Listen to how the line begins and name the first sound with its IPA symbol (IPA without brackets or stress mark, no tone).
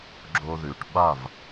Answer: ɡ͡ǁ